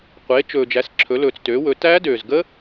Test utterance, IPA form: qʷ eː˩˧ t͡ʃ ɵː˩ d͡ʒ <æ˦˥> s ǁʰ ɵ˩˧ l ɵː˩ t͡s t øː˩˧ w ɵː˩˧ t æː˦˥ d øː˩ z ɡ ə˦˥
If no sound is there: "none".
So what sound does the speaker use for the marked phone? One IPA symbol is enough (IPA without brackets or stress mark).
æ˩˧